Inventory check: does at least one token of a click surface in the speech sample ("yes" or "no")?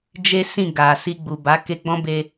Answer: no